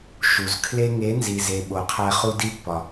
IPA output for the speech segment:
ʃ u˨ z kʰ l e˧ ŋ e˨˦ n z i˨ z e˨ ɓ o˨ qʰ æ˧ χ u˧ d i˧ pː ɒ˨

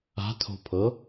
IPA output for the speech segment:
a̤ tʰ o̤ pʰ ɤ

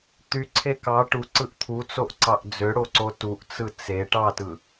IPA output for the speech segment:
t̪ y ǀʰ e k ɑ ʈ u ǀ ɯ ʔ t̪ʰ u t͡s o ʔ ǀ ɑ ʔ d͡z ø ɽ o ǀ o t u ʔ t͡s ɯ t͡s e ʈ ɑ t ɯ

